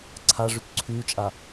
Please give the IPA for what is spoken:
ǀʰa ʐykǀʰyːt͡ʃʼa

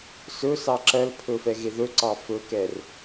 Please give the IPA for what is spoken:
sɵsɑ ǁɜlpʰɵ fɛɣeðɵǀɑ fɵkɛr

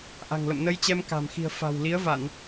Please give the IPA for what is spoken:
ʔa̤˨˩ŋlə̰˧˨mnə˧jt͡ɕɛ˧m ka̤˨˩mxi̤˨˩ə̯ fa̤˨˩wli˨˦ə̯va˧˩˨n

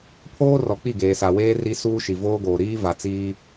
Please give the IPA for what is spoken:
pʰoː˦rɔ˨ k͡pi˦˨ɡeː˨sa˨weː˦ ri˦ suː˦ʃi˨voː˦ɡoː˨ ɾiː˦ va˨t͡siː˦

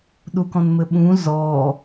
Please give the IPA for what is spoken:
ɗukɔ̃nmɘɓũ zɔ

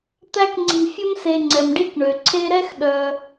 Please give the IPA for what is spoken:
t̪æ˦kŋ͡ǀi̤˨ fʲɵ˥mse˨ŋ͡ǀɛ˩mɖi˥k ɳø˩ǀʰe˦ɾɛ˥x ɗœ˨

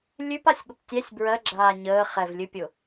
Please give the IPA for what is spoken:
lʲʉpasʲɠʊp tʲɛsʲ bɹɜɡ͡ǁaː ɲəː χɛvlʲɨpʲʊ

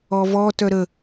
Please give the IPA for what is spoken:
ɔvɔ tœɾə

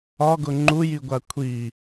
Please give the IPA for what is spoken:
ɒɡʊ ŋ͡ǃujiɡʷa kʷʰi

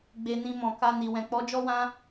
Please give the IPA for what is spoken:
ɡ͡be˧nĩ˧ mɔ̃˨ka˧ni˨ wɛ̃˨k͡pɔ˨˦d͡ʒɔ˦wã˦

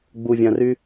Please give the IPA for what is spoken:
ɡ͡buvʲãry

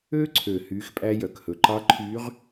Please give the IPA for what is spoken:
ø˧ǀʰø˩ hyː˩˧xpʼæ˧ jœ˩khɵ˩ ǃɑ˧˥ǃʰyː˧˥ʁ

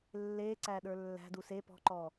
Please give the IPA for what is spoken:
lːeǀæ ɗə˞lːæ̤du se pɔ̤ǃɔ

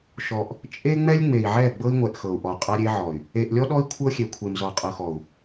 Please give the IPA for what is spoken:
ʃɔ˨ʔ | t͡ʃʼe˦ŋ͡mɛ˦lʲ ŋ͡me˨i̯ʕɛ˦˨ɡ͡bɤ˦i̯ŋʷɛ˨ʔ xɤ˨u̯ʔɔ˨qʼa˦ ɾʲe˦ʕɔ˨y̯ | e˨ʔlʲɔ˦ɗɔ˦i̯ kʷʰɤ˦xʲe˨kʷʰe˨m zɔ˨qʼɤ˨xɔ˨u̯

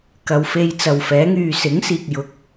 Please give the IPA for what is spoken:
kɐ˨wfe˧jt͡sɐ˨wfɛː˨˥ ŋyː˨sɪ˨˥ŋsiː˨k̚ jʊ˨˥k̚

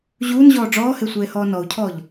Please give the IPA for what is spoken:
ʑuːnʑɔː ɖ͡ʐɔːhe sʷeːhɔːnɔu̯cʰɔːʎ

